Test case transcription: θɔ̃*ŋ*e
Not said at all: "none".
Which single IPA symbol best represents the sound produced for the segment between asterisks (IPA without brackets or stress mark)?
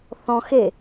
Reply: x